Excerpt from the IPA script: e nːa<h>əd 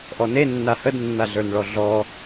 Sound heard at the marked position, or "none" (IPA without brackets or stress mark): h